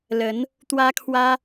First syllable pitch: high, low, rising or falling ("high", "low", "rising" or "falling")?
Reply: rising